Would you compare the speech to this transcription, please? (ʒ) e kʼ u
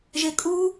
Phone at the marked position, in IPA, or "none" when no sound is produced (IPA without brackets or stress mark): ʒ